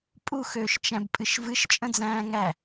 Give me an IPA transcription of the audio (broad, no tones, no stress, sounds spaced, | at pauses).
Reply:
pʼ u x øː ʃ t͡ʃ æ̃ b pʼ ɨ ʃ v ɨ ʃ t͡ʃʼ ə̃ d͡z æ̃ː ŋ æ